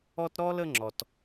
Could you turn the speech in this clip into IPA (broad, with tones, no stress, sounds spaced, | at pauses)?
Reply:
ɔ˦ t ɾ ɔ˦ l ə˦ ŋ͡ǁ ɔ˧ t